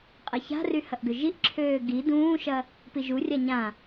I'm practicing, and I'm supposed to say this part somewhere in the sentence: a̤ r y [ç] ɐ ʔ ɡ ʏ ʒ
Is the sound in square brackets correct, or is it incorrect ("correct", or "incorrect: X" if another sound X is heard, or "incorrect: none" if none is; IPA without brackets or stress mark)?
incorrect: h